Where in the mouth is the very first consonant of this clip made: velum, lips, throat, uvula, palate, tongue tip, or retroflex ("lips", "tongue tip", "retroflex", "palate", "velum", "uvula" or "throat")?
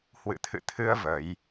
throat